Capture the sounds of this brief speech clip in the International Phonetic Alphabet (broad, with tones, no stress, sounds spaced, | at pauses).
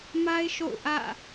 m a˦ ɪ̯ ʃ o̰˦˨ ʊ̯ ʔ ä̰˦˨